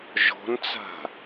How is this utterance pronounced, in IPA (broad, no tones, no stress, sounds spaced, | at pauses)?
ʒ ɔ̤ n t͡s a̤